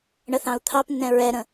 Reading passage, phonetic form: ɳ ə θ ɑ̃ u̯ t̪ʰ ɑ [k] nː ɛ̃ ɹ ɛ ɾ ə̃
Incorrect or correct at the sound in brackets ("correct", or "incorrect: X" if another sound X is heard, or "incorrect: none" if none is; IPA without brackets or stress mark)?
incorrect: p